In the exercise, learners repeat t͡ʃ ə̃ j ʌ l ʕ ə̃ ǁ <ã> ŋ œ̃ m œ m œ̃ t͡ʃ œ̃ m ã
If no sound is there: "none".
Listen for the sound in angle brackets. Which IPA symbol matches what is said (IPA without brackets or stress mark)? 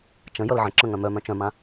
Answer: ə̃